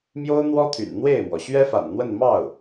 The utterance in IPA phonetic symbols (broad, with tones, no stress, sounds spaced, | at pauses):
m j o˥ ʊ̯ n̪ w ɔ˥ t̪ʰ y̰˨˩ n n̪ w e˥˩ ɪ̯ m w ɔ˩ ɕ ɥ ɛ˥ f a̰˨˩ n n̪ w ə˥˧ n m ɑ˥˩ ʊ̯